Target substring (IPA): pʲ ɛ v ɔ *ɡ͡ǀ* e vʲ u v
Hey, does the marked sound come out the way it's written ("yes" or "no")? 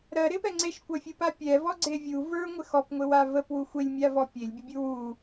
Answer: yes